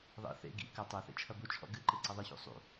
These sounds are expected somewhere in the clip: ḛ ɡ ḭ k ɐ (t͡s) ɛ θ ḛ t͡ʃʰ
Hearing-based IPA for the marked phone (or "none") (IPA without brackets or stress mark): tˤ